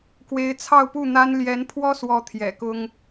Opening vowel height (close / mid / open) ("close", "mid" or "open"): mid